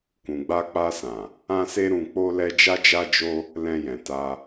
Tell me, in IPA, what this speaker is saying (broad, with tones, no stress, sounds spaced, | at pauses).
k ũ˨ ɡ͡b a˧ k͡p a˧ s ã˨ | ã˧ s e˧ ɾ ũ˨ k͡p o˧ l ɛ˧ d͡ʒ a˧ d͡ʒ a˧ d͡ʒ o˧ | l ɛ̃˧ j ɛ̃˨ t a˧